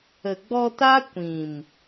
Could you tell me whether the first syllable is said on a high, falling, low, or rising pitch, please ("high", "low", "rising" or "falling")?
low